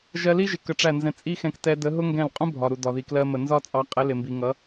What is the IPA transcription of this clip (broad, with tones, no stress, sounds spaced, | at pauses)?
ʒ ɜ˧ l i˦ ʒ ɪ˨ k ə˧ ʈ͡ʂ æ˦˨ n z ɛ̃˧ t͡sʼ i˦ x ɛ̃˧ k t ɛ˧ d ə˨˦ ɦ ʊ˦ ŋ ɡ ɛ̃˦˨ l qʼ ũ˦ bʱ ɒ˨ ɾ u˨ d ɒ˨ ð i˧ k l ɜ˦ m ə˧ n z ɒ˦ t͡sʼ ɑ˧ qʼ ɛ˨˦ l ɪ˨ m b i˨ ŋ ʌ˨˦